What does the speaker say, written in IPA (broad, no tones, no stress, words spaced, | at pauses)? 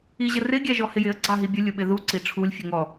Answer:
iʑərɪ ɡʲæʒɔhɪjɪə̯ ɡ͡ǀɑɦibʲə lʲʊɓɪðu ǀiʈ͡ʂʰulʲ fʲəŋɔ